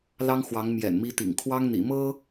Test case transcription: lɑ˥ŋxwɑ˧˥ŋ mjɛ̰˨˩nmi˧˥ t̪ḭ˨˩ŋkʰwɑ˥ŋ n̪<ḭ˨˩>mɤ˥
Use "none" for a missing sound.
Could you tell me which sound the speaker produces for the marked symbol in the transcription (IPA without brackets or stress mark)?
ḭ˨˩